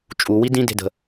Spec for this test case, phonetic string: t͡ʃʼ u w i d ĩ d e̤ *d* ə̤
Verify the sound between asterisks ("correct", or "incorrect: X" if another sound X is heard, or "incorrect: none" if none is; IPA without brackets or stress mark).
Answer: correct